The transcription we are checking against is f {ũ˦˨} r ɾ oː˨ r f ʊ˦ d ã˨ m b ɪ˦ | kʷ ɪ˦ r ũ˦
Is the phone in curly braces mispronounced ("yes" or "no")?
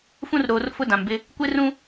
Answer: yes